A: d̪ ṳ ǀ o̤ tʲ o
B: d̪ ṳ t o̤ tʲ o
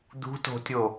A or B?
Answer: B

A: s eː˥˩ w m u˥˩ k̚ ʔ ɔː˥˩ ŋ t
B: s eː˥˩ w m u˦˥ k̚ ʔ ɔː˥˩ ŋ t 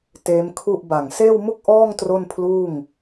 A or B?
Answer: A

